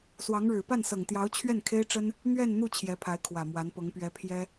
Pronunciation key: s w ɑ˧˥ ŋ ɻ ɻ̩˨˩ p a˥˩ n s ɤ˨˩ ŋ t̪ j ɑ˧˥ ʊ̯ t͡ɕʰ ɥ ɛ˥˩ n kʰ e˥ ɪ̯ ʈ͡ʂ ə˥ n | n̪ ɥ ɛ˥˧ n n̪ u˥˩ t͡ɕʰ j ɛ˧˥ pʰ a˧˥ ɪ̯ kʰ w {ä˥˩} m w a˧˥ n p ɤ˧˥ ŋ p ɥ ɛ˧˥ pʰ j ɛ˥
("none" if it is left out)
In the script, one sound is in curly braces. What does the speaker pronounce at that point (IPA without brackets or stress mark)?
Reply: ä˨˩